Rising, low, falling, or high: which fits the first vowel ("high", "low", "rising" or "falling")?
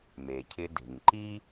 low